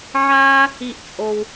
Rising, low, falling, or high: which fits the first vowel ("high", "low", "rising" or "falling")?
high